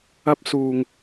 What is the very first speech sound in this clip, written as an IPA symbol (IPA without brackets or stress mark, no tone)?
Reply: ɐ